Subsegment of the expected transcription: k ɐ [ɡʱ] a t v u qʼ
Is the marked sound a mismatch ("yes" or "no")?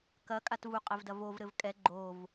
yes